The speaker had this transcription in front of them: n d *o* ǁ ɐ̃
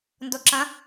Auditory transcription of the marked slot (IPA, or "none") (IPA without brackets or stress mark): o